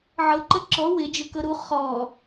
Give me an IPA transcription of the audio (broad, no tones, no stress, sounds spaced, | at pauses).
ʕ ɤ ǃ ə ǁ ɔ w ɪ d͡ʒ ø k ɤ ɾ u χ ɔ